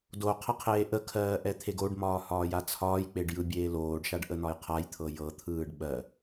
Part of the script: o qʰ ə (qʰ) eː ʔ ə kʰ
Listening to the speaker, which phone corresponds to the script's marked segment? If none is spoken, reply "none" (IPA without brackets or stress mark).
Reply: qʰ